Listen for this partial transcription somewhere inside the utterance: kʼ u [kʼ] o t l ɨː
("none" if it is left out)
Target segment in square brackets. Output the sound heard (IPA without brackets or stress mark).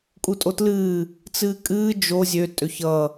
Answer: tʼ